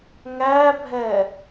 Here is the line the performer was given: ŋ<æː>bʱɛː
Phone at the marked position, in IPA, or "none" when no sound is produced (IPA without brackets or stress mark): æː